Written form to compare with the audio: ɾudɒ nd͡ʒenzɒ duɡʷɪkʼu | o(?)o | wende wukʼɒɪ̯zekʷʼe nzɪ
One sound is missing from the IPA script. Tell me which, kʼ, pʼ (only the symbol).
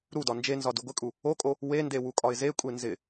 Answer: kʼ